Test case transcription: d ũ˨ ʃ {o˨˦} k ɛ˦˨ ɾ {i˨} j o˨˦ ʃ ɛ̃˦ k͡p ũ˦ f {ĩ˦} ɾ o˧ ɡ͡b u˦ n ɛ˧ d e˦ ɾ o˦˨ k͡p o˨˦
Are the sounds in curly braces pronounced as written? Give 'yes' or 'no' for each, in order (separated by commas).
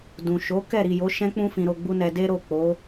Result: yes, yes, no